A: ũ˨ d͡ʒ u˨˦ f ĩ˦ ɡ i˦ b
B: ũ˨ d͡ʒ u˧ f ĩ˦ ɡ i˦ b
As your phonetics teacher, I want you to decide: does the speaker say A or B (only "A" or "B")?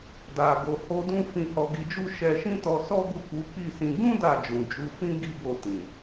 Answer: A